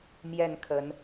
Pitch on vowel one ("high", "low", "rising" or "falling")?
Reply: falling